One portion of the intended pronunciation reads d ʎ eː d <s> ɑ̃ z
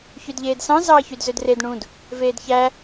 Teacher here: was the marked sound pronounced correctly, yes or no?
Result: yes